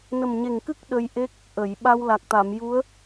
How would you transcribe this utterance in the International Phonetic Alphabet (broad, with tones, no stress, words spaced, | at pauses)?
nə˨˩mɲe˨˩ŋkɨ˦˥k̚ ɗə˧jʔe˦˥k̚ | ʔə˨˩˨jɓa˧w la˨˩k̚t̪a˨˩˨mju˧˥ə̯